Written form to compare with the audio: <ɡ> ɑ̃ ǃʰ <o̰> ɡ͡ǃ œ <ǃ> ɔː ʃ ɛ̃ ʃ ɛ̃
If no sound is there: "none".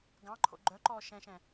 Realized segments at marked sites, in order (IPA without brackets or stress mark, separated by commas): ɡ, o̰, ǃ